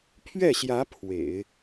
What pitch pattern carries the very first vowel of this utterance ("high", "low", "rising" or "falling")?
falling